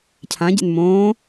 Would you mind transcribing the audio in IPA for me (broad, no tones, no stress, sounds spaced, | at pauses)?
cʰ ã ɟ ḛ n m õː